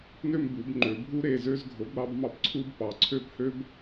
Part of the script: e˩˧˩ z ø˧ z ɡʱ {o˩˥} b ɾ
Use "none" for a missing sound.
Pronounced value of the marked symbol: o˩˥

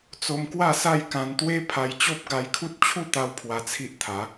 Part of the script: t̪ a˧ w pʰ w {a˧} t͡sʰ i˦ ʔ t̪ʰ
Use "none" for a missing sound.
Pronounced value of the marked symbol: a˧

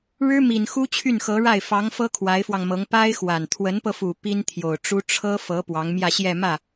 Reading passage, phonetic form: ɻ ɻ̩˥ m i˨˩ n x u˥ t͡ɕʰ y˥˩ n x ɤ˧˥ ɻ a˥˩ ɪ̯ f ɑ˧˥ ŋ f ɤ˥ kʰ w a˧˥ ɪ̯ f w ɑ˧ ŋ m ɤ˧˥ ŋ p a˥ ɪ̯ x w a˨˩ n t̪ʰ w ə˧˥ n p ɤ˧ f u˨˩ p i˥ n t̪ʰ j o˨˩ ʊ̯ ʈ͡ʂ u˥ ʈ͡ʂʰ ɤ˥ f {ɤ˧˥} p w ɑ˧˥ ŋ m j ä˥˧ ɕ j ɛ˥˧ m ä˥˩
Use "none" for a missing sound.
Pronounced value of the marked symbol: ɤ˧˥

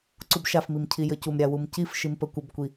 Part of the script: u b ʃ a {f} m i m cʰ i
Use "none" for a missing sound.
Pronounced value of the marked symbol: f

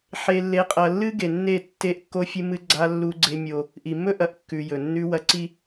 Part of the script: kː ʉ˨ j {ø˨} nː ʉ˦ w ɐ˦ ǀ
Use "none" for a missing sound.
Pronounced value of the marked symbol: ɵ˨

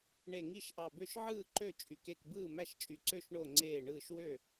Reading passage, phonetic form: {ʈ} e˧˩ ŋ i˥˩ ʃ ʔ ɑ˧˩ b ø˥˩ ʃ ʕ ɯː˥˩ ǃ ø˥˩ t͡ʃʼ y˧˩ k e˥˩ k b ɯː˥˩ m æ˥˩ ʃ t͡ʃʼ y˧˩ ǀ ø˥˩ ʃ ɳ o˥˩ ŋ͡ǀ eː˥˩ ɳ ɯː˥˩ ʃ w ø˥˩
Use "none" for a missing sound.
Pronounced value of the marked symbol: ɳ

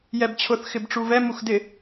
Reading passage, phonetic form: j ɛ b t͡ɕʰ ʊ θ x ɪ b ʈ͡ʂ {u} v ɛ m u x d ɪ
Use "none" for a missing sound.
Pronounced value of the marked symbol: u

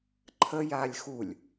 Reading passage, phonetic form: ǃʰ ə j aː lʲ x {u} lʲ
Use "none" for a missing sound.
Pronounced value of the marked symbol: u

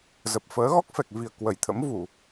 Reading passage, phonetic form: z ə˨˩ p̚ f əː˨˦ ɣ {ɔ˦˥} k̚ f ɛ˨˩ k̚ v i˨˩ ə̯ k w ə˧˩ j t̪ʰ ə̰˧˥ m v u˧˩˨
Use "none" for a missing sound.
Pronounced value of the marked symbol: ɔ˦˥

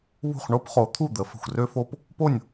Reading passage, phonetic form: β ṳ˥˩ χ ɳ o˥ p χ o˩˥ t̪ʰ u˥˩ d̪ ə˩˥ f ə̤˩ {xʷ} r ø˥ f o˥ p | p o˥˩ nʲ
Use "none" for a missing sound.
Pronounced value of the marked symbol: xʷ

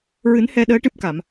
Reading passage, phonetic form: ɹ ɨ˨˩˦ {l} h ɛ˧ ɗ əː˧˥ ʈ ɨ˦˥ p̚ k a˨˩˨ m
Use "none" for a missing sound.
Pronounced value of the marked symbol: n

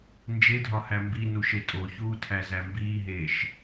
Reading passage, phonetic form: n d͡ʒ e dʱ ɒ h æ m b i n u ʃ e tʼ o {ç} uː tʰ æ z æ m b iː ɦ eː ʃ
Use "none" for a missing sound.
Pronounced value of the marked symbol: ç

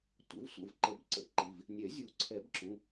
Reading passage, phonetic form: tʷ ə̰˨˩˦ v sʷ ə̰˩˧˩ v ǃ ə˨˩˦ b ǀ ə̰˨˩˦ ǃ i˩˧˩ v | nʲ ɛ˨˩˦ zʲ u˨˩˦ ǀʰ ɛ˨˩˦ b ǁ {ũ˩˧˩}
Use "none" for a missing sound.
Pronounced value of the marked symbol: ũ˩˧˩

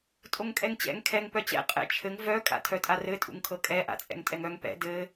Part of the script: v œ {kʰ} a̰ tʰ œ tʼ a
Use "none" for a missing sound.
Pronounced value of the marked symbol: kʼ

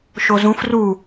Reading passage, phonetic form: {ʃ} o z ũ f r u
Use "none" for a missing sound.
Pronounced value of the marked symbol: ʃ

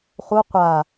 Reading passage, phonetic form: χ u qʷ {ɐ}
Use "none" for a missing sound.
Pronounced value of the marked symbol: a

